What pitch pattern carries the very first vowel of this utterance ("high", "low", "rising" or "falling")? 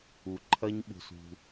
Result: low